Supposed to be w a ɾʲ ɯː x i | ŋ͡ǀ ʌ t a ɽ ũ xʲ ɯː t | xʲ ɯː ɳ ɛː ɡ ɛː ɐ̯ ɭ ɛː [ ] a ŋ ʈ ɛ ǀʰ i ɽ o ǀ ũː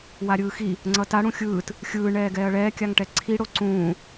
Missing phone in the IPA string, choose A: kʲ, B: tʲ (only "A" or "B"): A